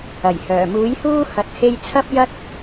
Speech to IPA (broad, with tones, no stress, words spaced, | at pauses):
ɐ˨˩jhœː˨˩ muː˨˥jhuː˥ hɐ˧t̚he˥j t͡sʰɐ˥p̚jɐ˥t̚